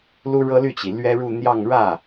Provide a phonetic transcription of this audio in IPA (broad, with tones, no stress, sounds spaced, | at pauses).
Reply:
l u˥ ɻ ɤ˥ l y˥˩ t͡ɕ i˩ l ɥ ɛ˥ ɻ u˥˧ n̪ j ɑ˥˧ ŋ ɻ ä˥˩